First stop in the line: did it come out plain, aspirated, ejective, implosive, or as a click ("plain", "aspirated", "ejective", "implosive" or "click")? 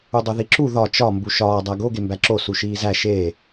plain